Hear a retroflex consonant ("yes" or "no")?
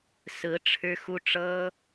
yes